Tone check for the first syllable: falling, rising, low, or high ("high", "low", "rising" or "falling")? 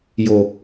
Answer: low